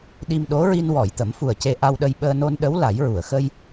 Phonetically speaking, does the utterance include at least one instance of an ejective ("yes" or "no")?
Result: no